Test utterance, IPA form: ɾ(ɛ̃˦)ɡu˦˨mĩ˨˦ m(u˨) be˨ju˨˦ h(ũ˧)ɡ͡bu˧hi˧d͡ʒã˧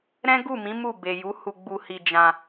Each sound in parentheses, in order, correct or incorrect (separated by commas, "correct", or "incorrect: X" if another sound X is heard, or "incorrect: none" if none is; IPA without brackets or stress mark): correct, incorrect: u˦˨, incorrect: u˧